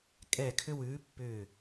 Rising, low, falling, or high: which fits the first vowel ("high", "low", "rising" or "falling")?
falling